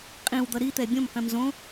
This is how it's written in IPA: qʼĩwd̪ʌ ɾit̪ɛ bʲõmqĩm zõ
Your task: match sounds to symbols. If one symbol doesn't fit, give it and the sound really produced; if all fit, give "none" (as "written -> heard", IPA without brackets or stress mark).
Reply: none